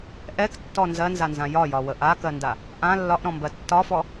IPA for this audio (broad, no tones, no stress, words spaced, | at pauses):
ʔɛktːɔ nzɜnzanzã jɒjɒwə ʔakɜnda | ʔã lːɒʔɾɔ̃mbɜ tːɒfɔ